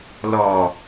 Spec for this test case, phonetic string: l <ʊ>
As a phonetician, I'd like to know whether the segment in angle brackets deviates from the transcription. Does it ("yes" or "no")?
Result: yes